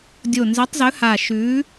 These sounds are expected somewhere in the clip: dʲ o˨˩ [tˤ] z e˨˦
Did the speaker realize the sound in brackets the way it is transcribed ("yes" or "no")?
no